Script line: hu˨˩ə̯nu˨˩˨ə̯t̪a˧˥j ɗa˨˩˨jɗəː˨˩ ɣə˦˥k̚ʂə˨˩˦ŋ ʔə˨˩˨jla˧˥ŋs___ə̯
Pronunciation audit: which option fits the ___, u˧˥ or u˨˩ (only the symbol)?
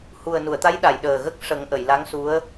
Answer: u˧˥